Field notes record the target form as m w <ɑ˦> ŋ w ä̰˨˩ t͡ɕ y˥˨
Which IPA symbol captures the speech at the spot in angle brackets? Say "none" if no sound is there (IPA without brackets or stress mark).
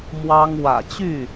ɑ˦